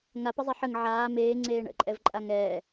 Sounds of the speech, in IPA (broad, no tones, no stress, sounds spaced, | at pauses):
ŋ a p ə zˤ e ħ ə ŋ ʕ aː m eː ŋ͡ǀ eː ɳ ə̰ ǃʼ ɛ v ǃʼ a ŋ ɛː